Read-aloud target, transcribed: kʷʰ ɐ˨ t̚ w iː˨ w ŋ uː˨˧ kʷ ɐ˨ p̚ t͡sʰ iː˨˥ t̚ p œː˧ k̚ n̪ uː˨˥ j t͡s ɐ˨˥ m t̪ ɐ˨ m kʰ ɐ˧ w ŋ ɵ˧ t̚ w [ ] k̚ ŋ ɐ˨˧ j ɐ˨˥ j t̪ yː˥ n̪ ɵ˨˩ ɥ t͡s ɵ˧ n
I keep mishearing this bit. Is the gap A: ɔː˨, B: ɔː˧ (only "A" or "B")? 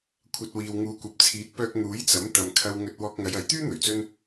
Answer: B